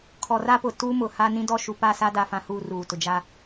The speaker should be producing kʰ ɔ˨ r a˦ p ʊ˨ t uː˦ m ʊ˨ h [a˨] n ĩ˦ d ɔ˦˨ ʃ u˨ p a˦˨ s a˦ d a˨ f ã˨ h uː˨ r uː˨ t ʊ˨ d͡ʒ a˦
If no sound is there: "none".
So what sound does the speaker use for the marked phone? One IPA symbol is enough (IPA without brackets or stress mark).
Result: a˦